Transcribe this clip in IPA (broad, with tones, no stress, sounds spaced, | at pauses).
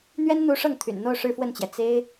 n̪ ɥ ɛ˥ n n̪ u˧˥ ʂ ɤ˥˩ ŋ t̪ʰ y̰˨˩ n n̪ o˥˧ ʊ̯ ʂ ɻ̩˥˧ f w ə˥˩ n t͡ɕ j ɛ˩ t͡s e˥ ɪ̯